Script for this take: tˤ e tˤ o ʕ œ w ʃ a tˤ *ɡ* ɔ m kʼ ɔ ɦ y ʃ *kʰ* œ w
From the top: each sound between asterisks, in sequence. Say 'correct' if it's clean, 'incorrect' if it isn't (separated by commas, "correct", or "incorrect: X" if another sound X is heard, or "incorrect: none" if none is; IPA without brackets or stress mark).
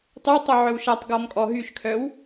correct, correct